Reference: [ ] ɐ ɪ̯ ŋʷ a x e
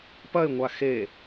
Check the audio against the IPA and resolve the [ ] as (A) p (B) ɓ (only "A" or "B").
A